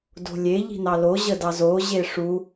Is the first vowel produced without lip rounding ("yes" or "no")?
no